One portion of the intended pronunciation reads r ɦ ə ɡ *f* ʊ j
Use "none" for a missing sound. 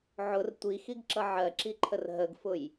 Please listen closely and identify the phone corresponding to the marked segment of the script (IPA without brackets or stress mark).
f